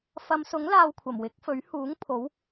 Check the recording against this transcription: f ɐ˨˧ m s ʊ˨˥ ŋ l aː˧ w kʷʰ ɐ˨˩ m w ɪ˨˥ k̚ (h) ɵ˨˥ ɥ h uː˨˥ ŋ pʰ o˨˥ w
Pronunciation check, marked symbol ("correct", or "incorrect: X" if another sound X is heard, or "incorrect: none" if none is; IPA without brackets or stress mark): incorrect: f